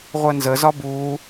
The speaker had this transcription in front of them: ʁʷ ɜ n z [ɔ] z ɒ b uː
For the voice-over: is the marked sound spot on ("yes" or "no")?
no